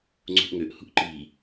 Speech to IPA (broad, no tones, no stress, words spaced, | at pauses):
ŋ͡ǀṳʔŋøʔhṳʔ ǃi